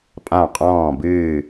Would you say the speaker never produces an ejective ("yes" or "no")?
no